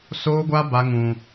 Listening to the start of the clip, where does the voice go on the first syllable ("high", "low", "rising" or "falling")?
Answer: high